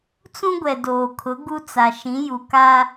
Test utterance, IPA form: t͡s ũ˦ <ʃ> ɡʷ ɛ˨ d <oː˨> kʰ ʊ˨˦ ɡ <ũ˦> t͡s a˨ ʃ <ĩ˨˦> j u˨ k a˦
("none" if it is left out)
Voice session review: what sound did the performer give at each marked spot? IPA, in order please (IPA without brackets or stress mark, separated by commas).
none, oː˨, u˦, ĩ˨˦